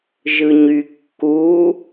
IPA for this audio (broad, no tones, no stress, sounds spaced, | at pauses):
ʒ ɯ ɲ y kː u